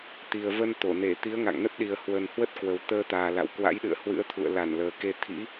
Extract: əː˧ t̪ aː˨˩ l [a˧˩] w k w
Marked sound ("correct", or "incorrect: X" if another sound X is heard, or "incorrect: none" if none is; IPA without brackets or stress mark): incorrect: a̰˧˨